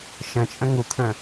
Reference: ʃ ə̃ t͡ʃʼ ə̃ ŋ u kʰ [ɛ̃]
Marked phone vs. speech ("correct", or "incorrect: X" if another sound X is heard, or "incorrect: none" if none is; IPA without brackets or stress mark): incorrect: ə̃